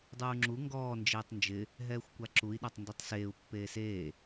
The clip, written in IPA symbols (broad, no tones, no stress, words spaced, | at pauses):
dˤuːŋ͡ǁu ŋɡɔː nd͡ʒeːtˤnd͡ʒɪ | ɦɛːxʷkʷaǁui̯ ɗatˤnditˤseːu̯ pːeːseː